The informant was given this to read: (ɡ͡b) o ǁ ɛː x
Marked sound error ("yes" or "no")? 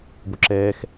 yes